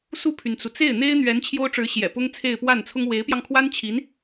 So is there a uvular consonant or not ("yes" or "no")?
no